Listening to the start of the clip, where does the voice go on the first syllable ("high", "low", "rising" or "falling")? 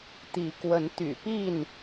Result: rising